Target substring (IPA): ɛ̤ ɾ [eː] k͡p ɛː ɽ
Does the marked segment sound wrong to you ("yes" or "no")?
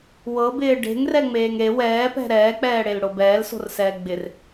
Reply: yes